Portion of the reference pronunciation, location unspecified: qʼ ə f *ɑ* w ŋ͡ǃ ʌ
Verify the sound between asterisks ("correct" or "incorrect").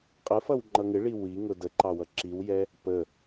incorrect